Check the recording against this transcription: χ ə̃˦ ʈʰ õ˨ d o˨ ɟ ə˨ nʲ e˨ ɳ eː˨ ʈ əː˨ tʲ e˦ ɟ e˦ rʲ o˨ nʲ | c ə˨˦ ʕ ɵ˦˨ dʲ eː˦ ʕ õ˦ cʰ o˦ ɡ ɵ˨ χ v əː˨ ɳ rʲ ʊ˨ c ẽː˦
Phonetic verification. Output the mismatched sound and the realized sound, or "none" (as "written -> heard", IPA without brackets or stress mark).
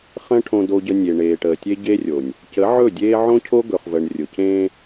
none